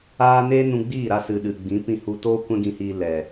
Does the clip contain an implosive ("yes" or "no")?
yes